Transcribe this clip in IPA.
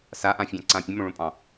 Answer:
s a ʔ ã fʲ ɑ̃ ǀ ã pʲ ə̃ m õ ɭ õ pʼ ɑ̃

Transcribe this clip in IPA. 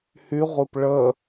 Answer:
h y ʁʷ ɨ p ɭ ə

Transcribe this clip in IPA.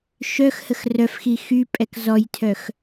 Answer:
ʃ œ x h ə x r œ f x i x y pʼ ɛ k z ɔ j tʰ œ x

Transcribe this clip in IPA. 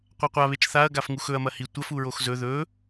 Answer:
qʷ a qʷ a β e t͡ʃ θ a ɐ̯ ɡ a f ŋ u x ɵ ɐ̯ m ɐ h i tʷ ɐ f u ɹ o x z ɵ ð ɵ

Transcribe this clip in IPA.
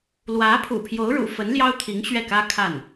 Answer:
l w ä˧˥ pʰ ṵ˨˩ pʰ j o˧˥ ʊ̯ ɻ ṵ˨˩ f ə˧˥ n l j ɑ˥ ʊ̯ t̪ʰ i˧˥ ŋ ɕ ɥ ɛ˥˩ k ä˥ kʰ a˥˩ n

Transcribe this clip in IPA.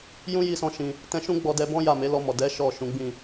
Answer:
j ũ˦ j i˦ s ɔ̃˦˨ ʃ ĩ˧ | t ɛ̃˧ ʃ ũ˦ ɡ͡b ɔ˧ d ɛ˧ b ɔ̃˦ j a˦˨ m e˨˦ l ɔ˧ m ɔ˨ d ɛ˨˦ ʃ ɔ˦˨ ʃ ũ˨˦ ɡ͡b ĩ˦˨

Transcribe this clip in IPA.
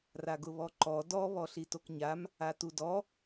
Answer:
r a ɡ ʊ β ɔ ǃ ɔ d ɔ β ɔ ɬ i t o k ɲ a m | a t u d ɔ

